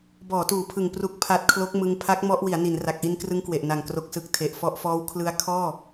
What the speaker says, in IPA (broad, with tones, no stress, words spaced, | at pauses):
bɔː˩˦tuː˩˦pʰɯ˨˩ŋ pru˨˩k̚pʰa˨˩t̚ kʰlo˦˥k̚mɯ˧ŋ pʰa˦˥k̚ mɔ˦˥ʔ wi˩˦a̯ ni˩˦nra˨˩k̚ʔi˧nkrɯ˦˥ŋ kwe˨˩ʔna˨˩ŋ kro˨˩k̚sɯ˨˩k̚ tʰe˨˩ʔfɔ˦˥ʔfɔː˦˥w kʰlɯ˦˥a̯ kʰɔː˥˩